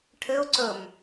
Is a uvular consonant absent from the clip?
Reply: yes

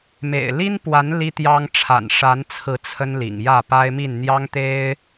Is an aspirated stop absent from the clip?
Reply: no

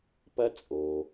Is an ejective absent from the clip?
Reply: no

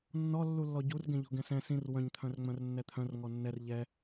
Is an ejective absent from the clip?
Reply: yes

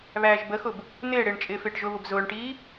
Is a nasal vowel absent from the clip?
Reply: yes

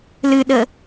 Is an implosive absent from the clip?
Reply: no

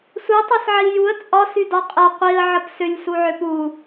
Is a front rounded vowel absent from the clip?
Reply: no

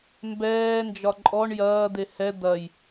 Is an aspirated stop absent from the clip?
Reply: yes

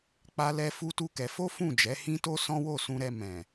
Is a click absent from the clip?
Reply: yes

